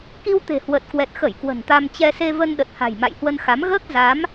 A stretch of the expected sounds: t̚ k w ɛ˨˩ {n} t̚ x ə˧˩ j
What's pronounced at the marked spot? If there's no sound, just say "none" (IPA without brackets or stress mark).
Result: none